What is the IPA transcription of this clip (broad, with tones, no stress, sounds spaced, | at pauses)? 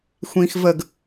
xʷ ĩː˦ x v ə˥˨ ɡ